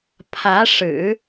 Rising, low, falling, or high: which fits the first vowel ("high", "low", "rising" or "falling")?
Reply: rising